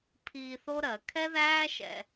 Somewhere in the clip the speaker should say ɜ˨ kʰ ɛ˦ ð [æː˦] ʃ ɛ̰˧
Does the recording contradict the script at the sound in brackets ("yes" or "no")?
no